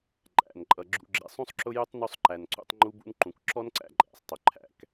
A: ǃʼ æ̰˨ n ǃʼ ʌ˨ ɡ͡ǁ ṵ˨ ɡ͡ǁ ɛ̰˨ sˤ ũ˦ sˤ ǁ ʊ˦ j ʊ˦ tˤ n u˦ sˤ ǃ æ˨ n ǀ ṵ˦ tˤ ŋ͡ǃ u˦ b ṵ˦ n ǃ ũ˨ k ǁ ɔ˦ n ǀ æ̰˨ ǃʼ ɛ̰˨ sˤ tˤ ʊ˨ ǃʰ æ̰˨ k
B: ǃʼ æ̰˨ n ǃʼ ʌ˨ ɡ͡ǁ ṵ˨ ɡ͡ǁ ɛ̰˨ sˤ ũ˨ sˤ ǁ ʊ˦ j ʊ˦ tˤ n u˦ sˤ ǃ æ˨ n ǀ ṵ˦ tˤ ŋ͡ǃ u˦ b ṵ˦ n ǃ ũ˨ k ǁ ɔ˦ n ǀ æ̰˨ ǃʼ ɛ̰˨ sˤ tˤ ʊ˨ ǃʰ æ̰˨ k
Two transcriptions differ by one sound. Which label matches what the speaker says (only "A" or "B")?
A